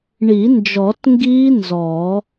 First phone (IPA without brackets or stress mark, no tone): ɳ